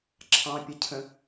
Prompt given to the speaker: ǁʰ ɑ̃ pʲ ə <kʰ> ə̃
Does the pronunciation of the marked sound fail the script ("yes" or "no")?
yes